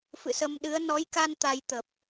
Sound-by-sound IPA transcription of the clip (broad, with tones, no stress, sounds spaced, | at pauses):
f ɨ̰˧˨ s ə˧ m ɗ ɨ˨˦ ə̯ n ɔ˨˦ j k a˧ n t̪ a˧ j t̪ ə˨˩ p̚